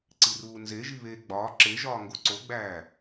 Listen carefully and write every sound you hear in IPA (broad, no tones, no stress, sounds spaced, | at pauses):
ǀ i r uː n z e ʒ i β eː ɡ͡b ɒː ǁ e ʒ ɒː ŋ ɡ o ǀ o ɡ͡b æː